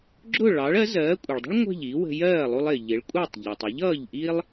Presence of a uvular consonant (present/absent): absent